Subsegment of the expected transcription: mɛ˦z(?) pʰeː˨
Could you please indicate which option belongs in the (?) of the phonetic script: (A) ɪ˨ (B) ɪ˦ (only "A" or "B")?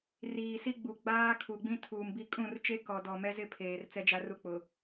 B